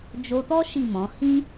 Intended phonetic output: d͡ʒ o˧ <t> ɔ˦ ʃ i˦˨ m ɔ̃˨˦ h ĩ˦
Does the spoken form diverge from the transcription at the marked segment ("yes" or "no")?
no